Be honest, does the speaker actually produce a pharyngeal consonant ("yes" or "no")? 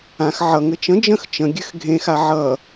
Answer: yes